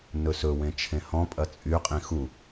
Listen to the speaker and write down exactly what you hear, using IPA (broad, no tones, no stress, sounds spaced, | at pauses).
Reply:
n ɵ s ɵ w ẽ t͡ʃʰ ẽ h ɔ̃ pʼ ɐ t͡sʼ y qʼ ĩ x u